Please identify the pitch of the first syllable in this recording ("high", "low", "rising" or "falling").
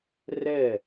falling